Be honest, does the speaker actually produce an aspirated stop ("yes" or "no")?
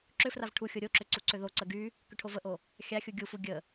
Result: yes